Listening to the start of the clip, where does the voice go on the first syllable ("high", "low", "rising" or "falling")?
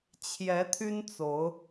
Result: rising